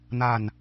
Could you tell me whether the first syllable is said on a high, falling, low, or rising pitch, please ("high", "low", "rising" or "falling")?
falling